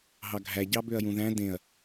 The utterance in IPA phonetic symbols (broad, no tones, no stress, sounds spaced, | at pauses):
ɦ ɑ ɡʱ æ ɟ ɑ b ø ɐ̯ j ũ ð æ̃ d ẽ ɐ̯